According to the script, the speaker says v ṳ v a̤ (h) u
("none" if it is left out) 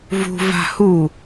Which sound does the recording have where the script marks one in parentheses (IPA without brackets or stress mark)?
h